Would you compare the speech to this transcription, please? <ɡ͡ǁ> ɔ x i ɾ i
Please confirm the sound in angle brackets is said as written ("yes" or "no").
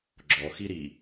yes